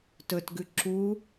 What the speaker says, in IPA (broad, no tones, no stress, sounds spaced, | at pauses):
t ɵ t ɡ ʉ ǁ u